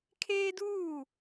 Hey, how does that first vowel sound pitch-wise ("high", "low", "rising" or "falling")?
high